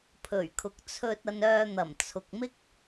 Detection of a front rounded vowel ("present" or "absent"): present